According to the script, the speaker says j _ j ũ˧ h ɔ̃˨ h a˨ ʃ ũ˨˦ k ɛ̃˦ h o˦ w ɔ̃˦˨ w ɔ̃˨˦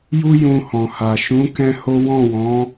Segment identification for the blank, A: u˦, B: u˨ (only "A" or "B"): A